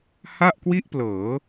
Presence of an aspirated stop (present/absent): absent